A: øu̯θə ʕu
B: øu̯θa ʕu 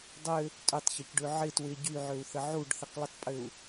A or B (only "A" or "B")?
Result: A